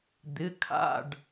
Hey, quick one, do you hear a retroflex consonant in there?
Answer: yes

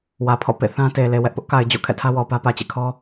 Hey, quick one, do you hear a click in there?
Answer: no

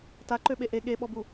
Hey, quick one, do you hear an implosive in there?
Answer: yes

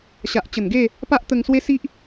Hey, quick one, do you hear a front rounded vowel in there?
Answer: no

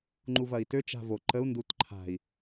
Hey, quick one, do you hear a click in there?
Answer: yes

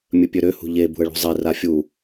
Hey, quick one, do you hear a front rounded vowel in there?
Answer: yes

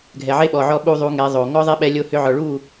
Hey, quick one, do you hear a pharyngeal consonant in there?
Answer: yes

